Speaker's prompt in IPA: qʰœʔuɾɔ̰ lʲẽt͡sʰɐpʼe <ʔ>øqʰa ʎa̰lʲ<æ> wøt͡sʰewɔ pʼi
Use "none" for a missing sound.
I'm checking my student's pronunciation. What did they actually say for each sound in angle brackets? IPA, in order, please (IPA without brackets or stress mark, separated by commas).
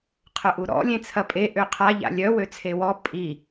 ʔ, œ